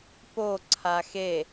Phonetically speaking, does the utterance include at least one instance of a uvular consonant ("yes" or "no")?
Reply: no